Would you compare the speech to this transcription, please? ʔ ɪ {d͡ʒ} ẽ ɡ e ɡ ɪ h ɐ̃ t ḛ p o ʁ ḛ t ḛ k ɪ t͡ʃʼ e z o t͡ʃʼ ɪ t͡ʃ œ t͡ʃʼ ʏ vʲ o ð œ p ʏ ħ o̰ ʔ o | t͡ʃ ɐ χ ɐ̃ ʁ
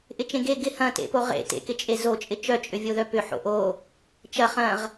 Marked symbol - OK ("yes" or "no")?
no